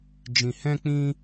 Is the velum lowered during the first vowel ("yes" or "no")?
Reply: yes